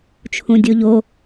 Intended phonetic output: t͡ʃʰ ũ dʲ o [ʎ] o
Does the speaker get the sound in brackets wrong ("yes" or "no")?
no